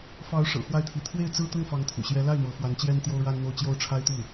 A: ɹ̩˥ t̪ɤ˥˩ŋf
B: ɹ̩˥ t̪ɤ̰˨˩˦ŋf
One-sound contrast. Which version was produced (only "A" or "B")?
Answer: A